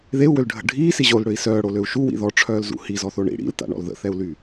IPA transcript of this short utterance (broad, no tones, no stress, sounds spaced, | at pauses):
ð e u̯ w ø l ɖʱ ə̰ ɖʱ iː s i ʑ o l ɽ ø i̯ s œː ɽ o l ø u̯ ʃ u w ḭ ð ɔ ʈ͡ʂʰ œː l z ṵ h i z ɔ θ o ɳ ḭ ɽ ḭ l t a̰ ɳ ɔ̰ l ð ə̰ θ ɛ u̯ l y